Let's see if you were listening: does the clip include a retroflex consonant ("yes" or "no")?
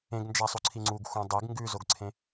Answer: no